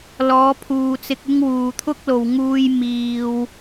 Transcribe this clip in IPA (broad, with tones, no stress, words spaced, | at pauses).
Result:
lɔː˨˧pʰuː˨t͡sɪ˧k̚ ɪ˥ŋwuː˨ t̪ʰʊ˥k̚lo˨w ŋuː˧j miː˨w